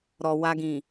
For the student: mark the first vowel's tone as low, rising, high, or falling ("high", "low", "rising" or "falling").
low